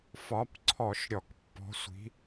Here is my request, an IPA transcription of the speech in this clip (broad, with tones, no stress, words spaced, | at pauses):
fɒ˨˦pǀʰɔ˧˩˧ʃ ɾʲɔ˧˩˧kpːɔ̤˨˦sʷi̤˨˦